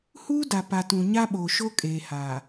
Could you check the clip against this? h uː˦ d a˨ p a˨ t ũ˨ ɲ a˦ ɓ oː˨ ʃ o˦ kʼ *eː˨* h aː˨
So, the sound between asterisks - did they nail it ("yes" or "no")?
yes